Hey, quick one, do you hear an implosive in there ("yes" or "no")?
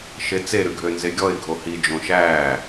no